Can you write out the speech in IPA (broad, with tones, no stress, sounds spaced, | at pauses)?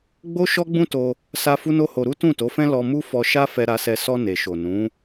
ɡ͡b o˦ ʃ ɔ˦ ɡ͡b ũ˦ t o˧ | s a˧ f u˦ n o˦ h o˧ ɾ u˦ t ũ˦˨ t o˨˦ f ɛ̃˦ l ɔ˧ m u˦ f ɔ˧ ʃ a˦ f ɛ˧ ɾ a˧ s ɛ˧ s ɔ˧ n e˨ ʃ o˨ n ũ˨˦